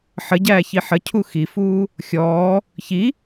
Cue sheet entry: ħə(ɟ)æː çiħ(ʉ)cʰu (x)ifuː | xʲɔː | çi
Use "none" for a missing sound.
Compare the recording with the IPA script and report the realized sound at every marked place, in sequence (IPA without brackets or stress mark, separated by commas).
ɟ, ə, x